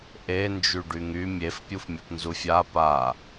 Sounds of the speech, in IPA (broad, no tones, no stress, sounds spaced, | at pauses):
ʔ e n d͡ʒ y ɖ y ŋ y mʲ e f pʲ u f mʲ a p n z u fʲ a p a